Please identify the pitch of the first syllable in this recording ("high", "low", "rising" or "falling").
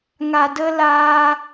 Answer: low